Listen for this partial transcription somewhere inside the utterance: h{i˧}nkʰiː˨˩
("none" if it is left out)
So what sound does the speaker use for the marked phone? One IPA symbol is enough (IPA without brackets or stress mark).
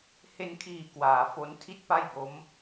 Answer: e˧